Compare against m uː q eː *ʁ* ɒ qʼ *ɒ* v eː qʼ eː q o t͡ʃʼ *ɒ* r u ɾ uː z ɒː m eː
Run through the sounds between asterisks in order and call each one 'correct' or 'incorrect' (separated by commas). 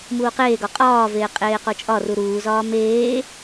incorrect, incorrect, correct